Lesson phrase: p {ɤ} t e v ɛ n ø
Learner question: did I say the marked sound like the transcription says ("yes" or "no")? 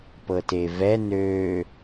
yes